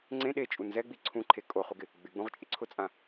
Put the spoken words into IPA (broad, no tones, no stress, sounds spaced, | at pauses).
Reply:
ŋ͡ǀ ẽ ɗ e t͡ʃʼ u n z ɛ ɡ͡b i ǀʰ ũ ǃʰ e kʼ o χ u ɡ ɪ | ɡ͡b ɪ ɡ͡b ũ ʁ t͡ʃʼ ɪ ǀʰ ʊ t͡sʼ ã